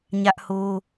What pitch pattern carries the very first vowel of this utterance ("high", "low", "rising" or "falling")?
high